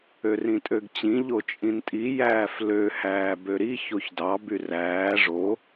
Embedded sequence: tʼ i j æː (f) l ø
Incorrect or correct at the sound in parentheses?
correct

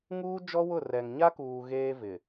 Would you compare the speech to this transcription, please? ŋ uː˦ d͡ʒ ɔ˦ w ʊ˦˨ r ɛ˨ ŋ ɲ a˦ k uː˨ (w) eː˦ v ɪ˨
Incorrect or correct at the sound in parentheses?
incorrect: ɣ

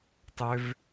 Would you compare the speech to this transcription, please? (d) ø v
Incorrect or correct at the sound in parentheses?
incorrect: tˤ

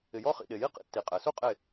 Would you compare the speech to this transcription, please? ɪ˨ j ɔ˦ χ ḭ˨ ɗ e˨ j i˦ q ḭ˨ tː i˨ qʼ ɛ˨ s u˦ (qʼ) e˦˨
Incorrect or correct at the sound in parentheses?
correct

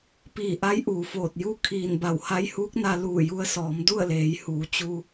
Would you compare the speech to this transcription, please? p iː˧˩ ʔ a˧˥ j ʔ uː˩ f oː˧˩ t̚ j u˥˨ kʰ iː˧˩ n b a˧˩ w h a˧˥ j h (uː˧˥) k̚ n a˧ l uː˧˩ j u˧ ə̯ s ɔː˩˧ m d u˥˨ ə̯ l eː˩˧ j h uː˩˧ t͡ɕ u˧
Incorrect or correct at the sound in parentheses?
correct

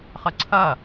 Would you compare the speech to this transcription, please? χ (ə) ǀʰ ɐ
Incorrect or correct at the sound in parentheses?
correct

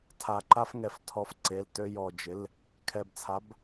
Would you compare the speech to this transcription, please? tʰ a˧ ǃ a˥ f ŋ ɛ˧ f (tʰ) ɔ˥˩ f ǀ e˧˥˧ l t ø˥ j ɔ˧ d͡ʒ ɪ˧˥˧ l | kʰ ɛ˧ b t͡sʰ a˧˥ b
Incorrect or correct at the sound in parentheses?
correct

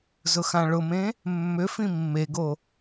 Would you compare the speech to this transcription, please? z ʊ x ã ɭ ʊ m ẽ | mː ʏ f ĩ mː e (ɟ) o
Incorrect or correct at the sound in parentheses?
incorrect: ɡ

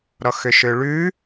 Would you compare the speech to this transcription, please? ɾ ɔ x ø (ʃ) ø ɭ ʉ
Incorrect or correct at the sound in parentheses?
correct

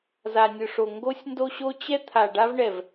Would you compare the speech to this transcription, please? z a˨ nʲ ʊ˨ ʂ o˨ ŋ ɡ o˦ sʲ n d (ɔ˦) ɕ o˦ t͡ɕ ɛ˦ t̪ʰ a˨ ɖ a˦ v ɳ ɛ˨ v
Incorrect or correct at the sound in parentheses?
incorrect: o˦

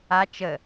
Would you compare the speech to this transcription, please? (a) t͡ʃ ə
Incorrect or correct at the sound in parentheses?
correct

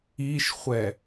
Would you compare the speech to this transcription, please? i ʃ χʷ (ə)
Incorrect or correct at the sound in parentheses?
incorrect: ɛ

